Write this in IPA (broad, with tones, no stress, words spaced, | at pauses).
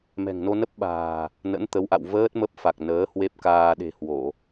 mɛ̤˨˩ŋno˧nə˦˥p̚ɓa̤ː˨˩ | nə̰˧˥nt̪ə˨˦wʔa̰˧˨w vəː˦˥t̚mə˦˥p̚fa˨˩k̚ nəː˨˦ hwe˦˥p̚kaː˧ ɗe̤˨˩hwo˧˩˨